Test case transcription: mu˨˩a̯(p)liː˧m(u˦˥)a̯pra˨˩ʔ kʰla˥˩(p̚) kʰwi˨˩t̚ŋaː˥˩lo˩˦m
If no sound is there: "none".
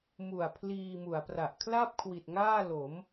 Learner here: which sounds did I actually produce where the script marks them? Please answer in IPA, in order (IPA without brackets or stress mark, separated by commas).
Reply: pʰ, u˩˦, p̚